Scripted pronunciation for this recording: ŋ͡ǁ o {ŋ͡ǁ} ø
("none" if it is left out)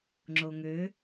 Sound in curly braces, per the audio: ŋ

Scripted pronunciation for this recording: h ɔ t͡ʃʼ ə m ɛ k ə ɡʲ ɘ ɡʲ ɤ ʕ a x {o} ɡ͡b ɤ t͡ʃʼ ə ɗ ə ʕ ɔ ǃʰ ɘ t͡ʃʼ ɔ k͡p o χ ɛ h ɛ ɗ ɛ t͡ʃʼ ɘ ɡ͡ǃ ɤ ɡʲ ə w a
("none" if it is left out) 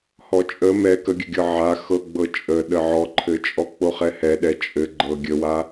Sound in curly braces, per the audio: ɤ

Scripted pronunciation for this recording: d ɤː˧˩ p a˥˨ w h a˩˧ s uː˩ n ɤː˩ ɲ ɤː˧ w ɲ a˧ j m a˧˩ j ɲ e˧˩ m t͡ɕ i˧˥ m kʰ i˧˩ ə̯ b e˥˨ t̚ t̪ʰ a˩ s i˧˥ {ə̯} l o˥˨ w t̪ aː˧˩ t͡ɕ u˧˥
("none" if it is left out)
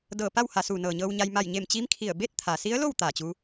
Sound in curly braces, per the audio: ə̯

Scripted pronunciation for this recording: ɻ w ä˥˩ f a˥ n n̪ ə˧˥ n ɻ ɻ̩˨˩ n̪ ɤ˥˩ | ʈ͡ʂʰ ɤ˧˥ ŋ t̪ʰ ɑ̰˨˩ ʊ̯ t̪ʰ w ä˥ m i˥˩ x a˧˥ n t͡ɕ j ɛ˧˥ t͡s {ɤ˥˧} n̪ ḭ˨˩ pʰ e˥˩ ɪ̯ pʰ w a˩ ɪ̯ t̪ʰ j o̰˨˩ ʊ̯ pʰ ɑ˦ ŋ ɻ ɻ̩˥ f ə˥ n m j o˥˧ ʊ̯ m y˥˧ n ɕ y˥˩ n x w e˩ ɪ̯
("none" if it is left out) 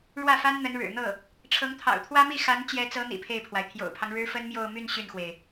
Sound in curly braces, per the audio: ɤ˧˥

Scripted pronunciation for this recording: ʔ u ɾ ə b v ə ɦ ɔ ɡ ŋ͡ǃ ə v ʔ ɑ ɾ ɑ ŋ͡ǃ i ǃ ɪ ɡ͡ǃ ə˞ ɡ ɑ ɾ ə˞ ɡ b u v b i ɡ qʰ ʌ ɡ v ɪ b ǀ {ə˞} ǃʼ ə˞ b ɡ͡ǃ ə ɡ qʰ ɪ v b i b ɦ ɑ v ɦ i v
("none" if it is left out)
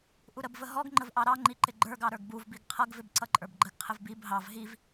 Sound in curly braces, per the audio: ʌ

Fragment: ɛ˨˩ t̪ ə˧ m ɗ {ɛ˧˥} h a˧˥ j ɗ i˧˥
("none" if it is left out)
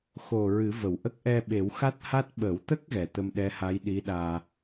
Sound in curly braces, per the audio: ɛ˧˥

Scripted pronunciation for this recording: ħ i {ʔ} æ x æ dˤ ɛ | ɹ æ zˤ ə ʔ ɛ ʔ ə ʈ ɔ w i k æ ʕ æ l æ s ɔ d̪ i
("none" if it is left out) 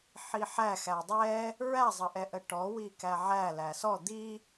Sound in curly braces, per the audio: ħ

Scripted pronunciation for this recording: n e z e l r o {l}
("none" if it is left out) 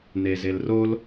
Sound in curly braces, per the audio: l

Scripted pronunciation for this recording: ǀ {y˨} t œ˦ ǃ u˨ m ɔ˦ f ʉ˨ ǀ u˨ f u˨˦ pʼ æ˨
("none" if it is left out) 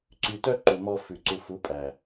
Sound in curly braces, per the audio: y˨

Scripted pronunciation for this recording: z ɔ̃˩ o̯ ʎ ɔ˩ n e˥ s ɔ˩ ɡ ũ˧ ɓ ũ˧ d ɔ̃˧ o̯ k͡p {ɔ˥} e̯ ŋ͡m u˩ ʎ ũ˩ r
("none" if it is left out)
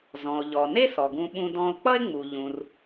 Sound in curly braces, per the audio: ʌ˥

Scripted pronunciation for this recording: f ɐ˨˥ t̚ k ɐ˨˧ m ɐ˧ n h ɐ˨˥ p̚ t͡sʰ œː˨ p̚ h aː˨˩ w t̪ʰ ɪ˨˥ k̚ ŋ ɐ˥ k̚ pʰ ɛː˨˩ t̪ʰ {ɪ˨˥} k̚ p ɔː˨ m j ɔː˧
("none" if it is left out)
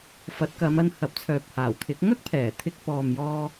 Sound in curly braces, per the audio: ɪ˧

